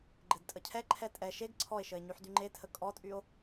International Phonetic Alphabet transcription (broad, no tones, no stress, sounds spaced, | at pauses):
ɡ͡ǃ ɘ d tʼ ə cʰ ɛ ǃʰ ɛ tʼ ɛ ʃ e ɡ ǀʰ ɔ e̯ ʃ ə e̯ ɲ y ħ d y ŋ͡ǃ e tʰ ə kʼ ɔ tʼ y o̯